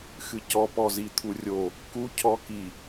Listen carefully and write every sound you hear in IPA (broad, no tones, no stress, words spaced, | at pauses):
xɨcɔ pɔzit̪ʰurʲo | ku cʰɔki